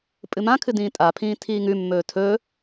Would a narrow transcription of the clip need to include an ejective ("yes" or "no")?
yes